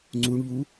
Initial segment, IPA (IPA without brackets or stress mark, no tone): ŋ͡ǀ